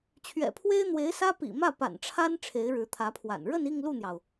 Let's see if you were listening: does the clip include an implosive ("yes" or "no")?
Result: no